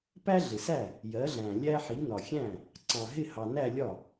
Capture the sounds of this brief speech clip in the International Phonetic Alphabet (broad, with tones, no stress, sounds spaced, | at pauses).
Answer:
p æ˥ ɮ ɪ˨ s æ˥˩ | j ɜ˨˥ ɮ æ̃˨ lʲ æ˥ ħ i˨˥ n ɒ˨ xʲ æ̃˥˩ | ǀ ɑ̃˨ ɦ ɪ˥˧ h ɑ˨ n æ˥˧ lʲ ɒ˥˩